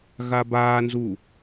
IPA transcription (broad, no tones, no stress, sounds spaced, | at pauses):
ɣ a b aː n z u